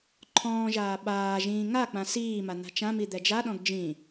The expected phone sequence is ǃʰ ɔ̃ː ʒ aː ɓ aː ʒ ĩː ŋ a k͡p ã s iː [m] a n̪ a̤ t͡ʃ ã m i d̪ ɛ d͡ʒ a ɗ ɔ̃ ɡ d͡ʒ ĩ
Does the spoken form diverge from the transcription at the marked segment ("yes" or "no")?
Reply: no